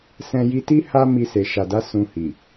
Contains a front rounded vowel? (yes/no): no